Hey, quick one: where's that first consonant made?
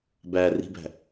lips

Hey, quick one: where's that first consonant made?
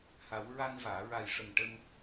throat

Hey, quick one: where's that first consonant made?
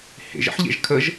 throat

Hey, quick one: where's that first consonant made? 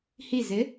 throat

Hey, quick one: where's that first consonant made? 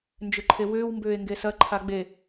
tongue tip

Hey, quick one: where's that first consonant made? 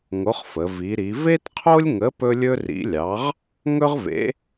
velum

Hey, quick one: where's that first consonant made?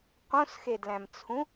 uvula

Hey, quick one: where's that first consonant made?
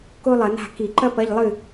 velum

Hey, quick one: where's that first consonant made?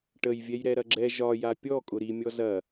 retroflex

